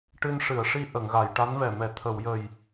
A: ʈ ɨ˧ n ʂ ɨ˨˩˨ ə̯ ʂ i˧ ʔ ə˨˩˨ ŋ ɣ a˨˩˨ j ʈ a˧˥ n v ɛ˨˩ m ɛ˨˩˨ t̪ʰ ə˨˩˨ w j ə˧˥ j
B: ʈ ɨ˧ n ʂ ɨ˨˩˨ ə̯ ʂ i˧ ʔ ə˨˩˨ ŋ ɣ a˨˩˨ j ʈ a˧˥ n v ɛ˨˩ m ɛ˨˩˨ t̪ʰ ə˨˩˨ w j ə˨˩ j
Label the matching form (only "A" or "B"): B